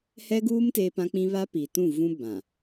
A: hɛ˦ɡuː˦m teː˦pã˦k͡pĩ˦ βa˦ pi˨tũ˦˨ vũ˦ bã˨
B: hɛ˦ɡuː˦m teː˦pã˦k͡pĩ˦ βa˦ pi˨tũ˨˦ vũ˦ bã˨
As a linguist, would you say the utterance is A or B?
A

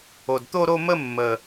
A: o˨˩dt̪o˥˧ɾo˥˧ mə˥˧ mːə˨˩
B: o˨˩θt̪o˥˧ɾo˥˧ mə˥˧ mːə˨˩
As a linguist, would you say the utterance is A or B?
A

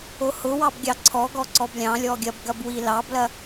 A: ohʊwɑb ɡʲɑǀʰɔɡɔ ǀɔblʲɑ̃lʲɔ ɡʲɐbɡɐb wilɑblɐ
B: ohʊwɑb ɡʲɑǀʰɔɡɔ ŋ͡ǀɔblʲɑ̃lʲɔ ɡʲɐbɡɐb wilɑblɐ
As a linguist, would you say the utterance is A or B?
A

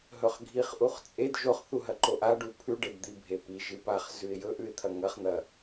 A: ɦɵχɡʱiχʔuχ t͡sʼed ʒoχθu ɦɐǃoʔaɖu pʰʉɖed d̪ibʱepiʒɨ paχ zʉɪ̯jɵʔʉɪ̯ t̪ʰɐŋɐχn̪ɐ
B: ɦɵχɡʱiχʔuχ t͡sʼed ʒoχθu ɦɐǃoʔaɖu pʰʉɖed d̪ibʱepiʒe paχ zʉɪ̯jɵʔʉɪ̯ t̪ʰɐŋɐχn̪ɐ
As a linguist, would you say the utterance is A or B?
A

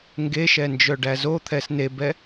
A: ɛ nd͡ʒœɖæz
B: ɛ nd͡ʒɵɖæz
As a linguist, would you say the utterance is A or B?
A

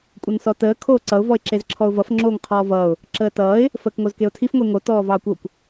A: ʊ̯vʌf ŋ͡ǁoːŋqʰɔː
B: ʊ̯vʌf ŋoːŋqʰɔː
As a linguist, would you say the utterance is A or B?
A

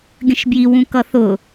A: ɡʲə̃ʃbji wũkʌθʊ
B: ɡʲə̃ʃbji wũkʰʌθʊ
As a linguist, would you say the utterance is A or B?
A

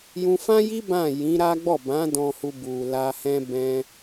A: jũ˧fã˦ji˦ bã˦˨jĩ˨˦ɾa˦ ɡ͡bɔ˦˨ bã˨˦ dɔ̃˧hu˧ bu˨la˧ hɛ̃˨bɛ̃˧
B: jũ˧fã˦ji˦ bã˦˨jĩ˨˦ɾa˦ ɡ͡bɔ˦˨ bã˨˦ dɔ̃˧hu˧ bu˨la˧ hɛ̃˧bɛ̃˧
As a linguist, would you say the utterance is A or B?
B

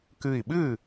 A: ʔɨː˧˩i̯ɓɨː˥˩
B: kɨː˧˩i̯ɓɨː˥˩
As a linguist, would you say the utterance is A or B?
B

